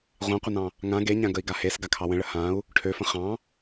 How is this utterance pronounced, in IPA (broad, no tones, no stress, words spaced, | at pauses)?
ʁʷɑ̃qʷənɑ̃ | ŋã ɡeɲã ɡəi̯ɡahes ɡakʰɑwə̃ɭə hãu̯ | ʈʰøfə̃ χɑ̃